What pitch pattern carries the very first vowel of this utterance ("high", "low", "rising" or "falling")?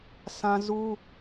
high